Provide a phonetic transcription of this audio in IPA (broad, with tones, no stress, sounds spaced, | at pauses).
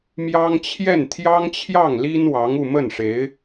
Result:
m j ɑ˥ ŋ t͡ɕʰ j ɛ˥˩ n t̪ʰ j ɑ˥ ŋ t͡ɕʰ j ɑ˥˩ ŋ l i˥ n w ɑ˧˥ ŋ u˥˧ m ə˥˩ n ʂ e˧˥ ɪ̯